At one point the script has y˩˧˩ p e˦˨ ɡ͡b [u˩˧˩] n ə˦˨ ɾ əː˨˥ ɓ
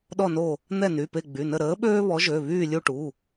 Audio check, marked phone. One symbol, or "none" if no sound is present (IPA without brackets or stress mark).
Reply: y˩˧˩